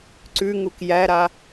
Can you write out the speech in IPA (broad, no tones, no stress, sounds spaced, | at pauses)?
ǀ ʉ ŋ u k j æ ɾ a